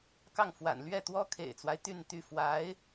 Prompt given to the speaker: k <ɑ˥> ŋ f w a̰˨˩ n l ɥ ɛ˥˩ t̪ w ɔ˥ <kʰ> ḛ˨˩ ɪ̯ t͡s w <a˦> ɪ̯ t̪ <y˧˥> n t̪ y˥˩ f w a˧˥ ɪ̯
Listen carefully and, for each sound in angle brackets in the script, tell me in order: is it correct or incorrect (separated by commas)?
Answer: incorrect, correct, correct, incorrect